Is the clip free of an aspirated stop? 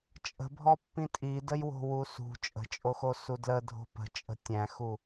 yes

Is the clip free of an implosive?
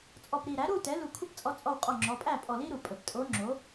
yes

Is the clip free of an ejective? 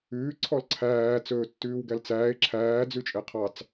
no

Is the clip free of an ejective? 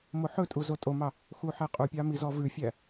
no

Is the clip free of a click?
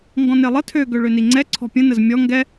no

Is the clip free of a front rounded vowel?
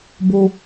yes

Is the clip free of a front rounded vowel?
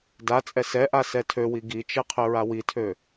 no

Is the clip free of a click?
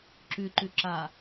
no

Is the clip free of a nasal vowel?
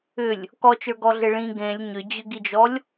no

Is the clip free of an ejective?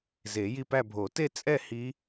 no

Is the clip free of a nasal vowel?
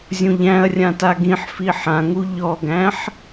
no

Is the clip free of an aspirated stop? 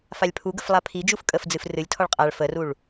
no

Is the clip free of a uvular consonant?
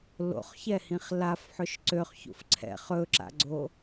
no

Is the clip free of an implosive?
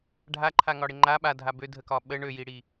no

